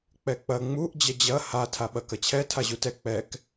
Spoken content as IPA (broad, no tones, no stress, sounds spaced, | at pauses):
k͡p ɛ k͡p ɐ ŋ͡m u ʔ d͡ʑ ɐ d͡ʑ ɐ h a tʰ a ɓ ɐ k ɐ t͡ɕʰ ɛ tʰ a ʑ u t ɛ k͡p ɛ k